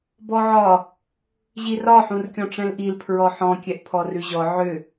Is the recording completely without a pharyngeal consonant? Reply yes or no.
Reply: no